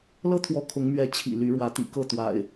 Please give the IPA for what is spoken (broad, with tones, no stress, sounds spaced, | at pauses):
l ɤ˦ t̪ʰ w ɔ˨˦ kʰ ʊ˨˦ ŋ m ɥ ɛ˨˦ t͡ɕʰ ḭ˨˩ l y˨˦ ɻ w ä˨˦ t̪ ḭ˨˩ k ɤ˥˨ t̪ w a̰˨˩ ɪ̯